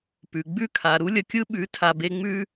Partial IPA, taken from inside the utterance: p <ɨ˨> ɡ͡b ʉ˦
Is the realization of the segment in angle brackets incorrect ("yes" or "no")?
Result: yes